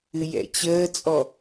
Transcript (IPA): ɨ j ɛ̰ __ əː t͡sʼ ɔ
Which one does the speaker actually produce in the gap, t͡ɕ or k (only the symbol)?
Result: t͡ɕ